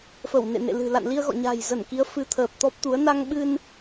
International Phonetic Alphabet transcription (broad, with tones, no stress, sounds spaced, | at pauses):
f ə˧˩ w n ḛ˧˨ n ḛ˧˨ l ɨ̤˨˩ l a̰˧˨ n l i˧ ə̯ ɣ ɔ̰˧˨ ɲ a̤˨˩ j z ə˧˩ n k i˨˦ ə̯ f ɨ˨˦ t̪ʰ əː˨˩ p̚ t̪ ɔ˦˥ p̚ t̪ u˨˦ ə̯ n a˧ ŋ ɓ ɨ˧ n